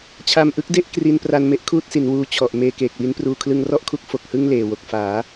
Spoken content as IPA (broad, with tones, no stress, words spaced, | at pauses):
t͡ɕʰa˧mʔɯ˦˥k̚de˥˩ʔ kri˧npra˧nme˦˥ʔ kʰuː˥˩t̚si˩˦n wuː˧t͡ɕʰɔ˨˩ʔ meː˧keː˨˩k̚wi˦˥npruː˧ kʰlɯ˧ŋrɔ˥˩ʔkʰu˦˥k̚ fo˨˩k̚hɯ˥˩ŋ leː˨˩wo˨˩k̚faː˩˦